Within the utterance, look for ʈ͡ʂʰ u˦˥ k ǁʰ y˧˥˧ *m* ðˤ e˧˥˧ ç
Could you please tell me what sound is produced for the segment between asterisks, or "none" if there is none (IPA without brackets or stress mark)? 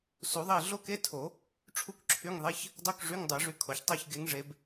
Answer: ŋ